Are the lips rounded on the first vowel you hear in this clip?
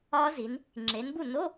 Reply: yes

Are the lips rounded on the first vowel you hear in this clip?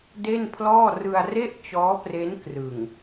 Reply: no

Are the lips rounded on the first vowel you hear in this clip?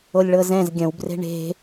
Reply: yes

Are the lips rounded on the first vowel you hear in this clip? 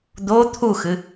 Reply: yes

